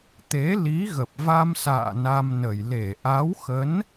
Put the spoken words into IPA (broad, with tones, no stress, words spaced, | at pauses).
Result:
t̪e˨˦ li˨˦ɣə˨˩p̚va˧msa̰ː˧˨ na˧mnə˨˩j le˧˩ ʔa˨˦wxə˨˦n